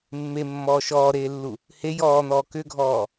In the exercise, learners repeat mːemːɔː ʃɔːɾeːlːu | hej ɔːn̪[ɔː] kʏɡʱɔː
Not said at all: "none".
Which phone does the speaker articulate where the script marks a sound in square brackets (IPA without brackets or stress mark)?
ɔː